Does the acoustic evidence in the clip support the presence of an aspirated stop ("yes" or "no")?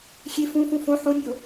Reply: no